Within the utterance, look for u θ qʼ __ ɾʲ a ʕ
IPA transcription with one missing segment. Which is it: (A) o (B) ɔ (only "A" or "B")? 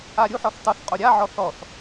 A